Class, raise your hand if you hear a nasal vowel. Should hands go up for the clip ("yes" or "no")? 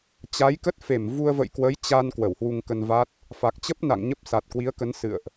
no